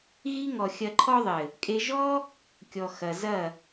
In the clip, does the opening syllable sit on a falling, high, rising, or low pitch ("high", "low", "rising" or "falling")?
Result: high